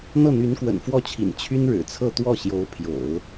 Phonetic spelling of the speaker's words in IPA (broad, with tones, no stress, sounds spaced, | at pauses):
n̪ ɤ˥˩ n̪ y˧˥ n k w ə̰˨˩ n f w ɔ˥˩ t͡ɕʰ ḭ˨˩ n t͡ɕʰ y˥ n ɻ ɻ̩˨˩ t͡sʰ ɤ˥˧ t̪ w ɔ˥˩ ɕ j o˧˥ ʊ̯ pʰ j o̰˨˩˦ ʊ̯